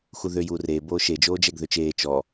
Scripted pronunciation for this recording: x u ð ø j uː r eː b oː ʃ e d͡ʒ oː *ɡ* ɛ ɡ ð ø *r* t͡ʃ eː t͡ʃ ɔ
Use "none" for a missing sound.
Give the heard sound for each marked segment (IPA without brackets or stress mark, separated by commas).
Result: d͡ʒ, none